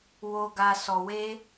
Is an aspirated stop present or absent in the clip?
absent